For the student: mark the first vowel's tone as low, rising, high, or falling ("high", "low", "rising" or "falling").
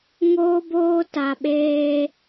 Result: high